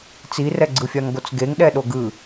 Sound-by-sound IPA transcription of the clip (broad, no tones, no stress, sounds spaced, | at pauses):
t͡s i r ɛ ɡ͡ǀ ɯ fʲ a ŋ ɡ o t͡s ɡ e ŋ ɗ ɛ ɗ o ɡ ɯ